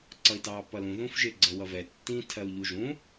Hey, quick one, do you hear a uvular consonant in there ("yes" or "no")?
no